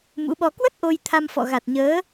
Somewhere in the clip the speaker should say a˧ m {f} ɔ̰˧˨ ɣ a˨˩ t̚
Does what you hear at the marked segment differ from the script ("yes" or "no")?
no